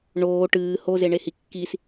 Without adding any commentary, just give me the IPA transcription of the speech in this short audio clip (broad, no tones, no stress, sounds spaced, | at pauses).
ɳ oː ʈ ɨː h o z e ɳ e h i kː i s